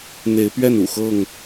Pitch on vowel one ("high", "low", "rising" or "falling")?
rising